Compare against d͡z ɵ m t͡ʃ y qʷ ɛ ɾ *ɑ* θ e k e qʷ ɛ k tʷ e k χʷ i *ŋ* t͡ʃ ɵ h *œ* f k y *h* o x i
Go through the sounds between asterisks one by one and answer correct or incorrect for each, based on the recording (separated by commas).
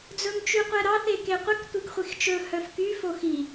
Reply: correct, incorrect, correct, incorrect